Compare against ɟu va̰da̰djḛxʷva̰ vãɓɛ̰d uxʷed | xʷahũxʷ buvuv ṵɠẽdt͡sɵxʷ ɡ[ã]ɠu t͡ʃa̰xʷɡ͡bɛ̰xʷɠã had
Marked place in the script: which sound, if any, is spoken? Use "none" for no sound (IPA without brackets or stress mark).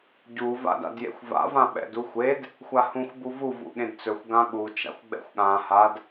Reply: ã